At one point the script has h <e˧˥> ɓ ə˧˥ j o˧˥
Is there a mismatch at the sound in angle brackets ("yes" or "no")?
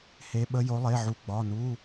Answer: no